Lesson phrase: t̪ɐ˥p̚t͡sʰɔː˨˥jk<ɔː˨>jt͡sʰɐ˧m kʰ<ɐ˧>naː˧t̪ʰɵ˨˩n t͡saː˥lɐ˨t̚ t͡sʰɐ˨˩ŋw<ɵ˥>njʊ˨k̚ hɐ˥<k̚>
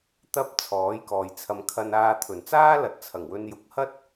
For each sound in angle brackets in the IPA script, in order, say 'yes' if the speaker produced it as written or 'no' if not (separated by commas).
yes, yes, no, no